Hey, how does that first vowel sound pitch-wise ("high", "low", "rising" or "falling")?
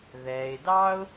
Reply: low